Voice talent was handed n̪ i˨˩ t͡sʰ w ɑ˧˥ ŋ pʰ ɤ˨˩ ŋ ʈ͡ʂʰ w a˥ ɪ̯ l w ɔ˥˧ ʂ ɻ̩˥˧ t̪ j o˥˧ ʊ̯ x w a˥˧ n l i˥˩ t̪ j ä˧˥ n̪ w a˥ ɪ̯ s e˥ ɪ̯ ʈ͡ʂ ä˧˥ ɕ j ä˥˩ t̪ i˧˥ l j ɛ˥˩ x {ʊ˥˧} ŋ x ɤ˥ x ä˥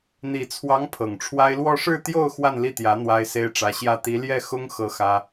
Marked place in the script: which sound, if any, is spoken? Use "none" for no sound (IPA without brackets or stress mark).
ʊ˥